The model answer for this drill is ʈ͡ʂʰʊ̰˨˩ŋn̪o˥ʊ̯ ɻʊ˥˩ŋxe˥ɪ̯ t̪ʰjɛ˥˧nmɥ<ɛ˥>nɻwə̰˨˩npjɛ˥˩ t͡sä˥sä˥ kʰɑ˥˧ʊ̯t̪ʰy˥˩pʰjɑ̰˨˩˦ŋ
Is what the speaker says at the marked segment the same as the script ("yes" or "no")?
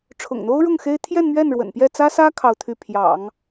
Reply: no